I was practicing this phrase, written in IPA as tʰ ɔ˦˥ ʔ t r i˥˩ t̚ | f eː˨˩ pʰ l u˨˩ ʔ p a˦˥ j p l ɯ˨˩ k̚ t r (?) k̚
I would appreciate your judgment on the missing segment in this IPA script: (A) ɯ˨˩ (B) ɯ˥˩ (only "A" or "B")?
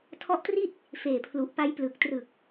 A